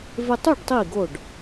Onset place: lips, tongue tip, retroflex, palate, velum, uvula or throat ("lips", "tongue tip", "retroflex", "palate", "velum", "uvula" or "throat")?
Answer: lips